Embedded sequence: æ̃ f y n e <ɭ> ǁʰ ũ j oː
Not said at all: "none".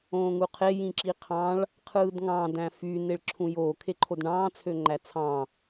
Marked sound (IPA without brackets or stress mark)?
ɭ